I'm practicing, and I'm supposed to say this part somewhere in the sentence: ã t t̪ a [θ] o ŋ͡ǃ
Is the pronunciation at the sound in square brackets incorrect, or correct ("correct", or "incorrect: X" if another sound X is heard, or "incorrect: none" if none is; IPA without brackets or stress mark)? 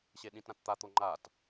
incorrect: t̪